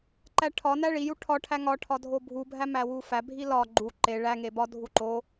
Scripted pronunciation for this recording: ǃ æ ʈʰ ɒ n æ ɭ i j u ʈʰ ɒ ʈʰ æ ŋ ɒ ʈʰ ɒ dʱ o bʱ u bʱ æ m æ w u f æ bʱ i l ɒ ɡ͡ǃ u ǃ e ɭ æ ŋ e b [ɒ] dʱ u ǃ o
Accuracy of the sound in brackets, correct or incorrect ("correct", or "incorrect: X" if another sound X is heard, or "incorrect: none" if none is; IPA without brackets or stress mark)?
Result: correct